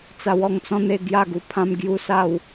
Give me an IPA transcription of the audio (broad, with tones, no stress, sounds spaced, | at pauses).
t͡s a˧ w ɔ˧ ŋ t͡s ɔ̃˦ n̪ e˧ ɡ j a˥˧ ɡ u˧ pʰ ã˦ m ɡ j u˦ s a˥˧ w